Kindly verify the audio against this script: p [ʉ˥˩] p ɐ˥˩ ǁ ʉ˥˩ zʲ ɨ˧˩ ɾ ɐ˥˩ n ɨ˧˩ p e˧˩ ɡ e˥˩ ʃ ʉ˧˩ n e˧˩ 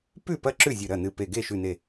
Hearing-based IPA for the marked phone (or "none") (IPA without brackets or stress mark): ʉ˥˩